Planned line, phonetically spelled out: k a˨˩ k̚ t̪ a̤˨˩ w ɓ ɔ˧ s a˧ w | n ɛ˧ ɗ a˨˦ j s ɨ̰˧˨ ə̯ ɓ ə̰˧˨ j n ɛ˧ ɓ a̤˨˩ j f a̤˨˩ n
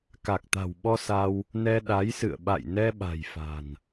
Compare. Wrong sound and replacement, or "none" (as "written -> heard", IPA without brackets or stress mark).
ə̰˧˨ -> a̰˧˨